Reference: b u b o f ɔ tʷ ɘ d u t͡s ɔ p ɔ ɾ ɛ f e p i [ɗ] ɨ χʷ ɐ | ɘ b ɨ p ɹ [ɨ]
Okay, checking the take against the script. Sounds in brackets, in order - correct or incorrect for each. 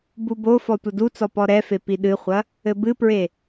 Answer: correct, incorrect

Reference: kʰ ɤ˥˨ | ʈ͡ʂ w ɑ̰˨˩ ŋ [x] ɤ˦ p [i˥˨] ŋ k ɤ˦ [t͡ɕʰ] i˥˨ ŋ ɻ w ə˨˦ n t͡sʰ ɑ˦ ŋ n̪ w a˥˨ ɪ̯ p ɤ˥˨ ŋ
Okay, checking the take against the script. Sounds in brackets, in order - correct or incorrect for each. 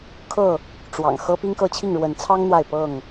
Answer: correct, incorrect, correct

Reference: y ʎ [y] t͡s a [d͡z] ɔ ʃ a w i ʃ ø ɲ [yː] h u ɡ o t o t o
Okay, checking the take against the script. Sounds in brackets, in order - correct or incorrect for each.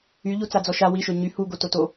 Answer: incorrect, correct, incorrect

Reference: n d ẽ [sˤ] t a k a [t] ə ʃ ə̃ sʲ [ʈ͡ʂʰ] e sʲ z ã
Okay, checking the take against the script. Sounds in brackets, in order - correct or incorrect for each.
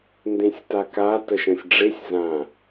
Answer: incorrect, correct, incorrect

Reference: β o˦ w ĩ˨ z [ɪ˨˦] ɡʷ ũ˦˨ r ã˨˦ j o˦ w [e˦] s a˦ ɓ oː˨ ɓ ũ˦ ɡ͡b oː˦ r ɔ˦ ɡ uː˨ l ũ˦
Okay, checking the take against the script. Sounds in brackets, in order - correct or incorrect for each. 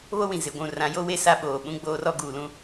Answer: correct, correct

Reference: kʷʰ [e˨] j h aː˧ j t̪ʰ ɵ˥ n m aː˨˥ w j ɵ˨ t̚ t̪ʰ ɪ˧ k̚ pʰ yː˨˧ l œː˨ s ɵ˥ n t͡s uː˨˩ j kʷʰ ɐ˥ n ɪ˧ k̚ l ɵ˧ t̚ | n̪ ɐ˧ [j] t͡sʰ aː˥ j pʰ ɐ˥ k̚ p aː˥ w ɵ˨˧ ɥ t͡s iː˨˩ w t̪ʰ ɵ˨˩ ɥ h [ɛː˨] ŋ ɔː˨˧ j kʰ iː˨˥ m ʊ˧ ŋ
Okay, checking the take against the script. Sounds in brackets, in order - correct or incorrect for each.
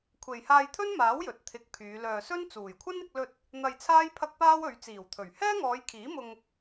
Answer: correct, correct, incorrect

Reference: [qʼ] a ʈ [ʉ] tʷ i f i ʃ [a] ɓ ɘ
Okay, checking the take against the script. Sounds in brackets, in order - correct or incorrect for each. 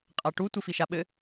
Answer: correct, incorrect, correct

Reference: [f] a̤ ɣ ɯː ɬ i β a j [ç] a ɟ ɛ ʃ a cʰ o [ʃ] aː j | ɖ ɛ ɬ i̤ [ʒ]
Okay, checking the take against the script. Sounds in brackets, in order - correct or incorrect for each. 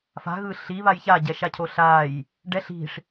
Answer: correct, correct, incorrect, incorrect

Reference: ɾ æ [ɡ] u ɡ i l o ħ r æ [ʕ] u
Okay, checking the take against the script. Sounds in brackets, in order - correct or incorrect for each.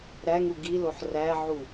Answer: incorrect, correct

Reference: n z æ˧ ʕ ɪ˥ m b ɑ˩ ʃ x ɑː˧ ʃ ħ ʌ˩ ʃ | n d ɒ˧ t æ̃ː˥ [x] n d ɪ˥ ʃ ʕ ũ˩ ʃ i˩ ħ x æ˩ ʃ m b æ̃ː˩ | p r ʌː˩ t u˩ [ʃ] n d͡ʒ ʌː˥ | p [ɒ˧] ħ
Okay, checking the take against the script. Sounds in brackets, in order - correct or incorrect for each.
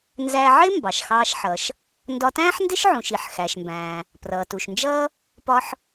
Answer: incorrect, correct, incorrect

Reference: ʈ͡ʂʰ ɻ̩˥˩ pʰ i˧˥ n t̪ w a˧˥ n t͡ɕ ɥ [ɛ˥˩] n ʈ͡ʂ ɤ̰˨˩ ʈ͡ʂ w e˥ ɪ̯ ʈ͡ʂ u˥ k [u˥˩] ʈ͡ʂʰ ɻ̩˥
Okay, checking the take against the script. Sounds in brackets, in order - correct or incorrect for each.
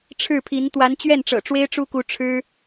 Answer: correct, incorrect

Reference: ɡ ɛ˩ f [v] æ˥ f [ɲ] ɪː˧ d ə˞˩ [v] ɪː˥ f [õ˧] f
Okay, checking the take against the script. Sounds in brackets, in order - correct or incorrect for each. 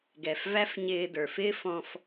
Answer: correct, correct, incorrect, incorrect

